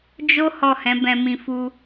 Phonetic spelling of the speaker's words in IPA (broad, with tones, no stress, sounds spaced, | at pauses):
d͡ʒ o˦ h ɔ˦˨ h ɛ̃˨˦ b ɛ̃˧ m ĩ˧ f u˧